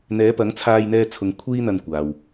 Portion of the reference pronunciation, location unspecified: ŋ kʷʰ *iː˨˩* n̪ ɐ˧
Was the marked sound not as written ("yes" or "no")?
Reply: yes